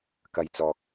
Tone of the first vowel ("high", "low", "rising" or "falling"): low